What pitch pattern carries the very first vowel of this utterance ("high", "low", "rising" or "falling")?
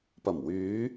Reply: low